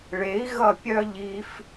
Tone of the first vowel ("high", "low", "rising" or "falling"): rising